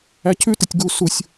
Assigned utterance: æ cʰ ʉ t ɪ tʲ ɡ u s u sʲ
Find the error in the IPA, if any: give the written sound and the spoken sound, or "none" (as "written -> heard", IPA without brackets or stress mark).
none